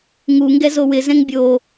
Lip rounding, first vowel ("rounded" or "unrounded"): rounded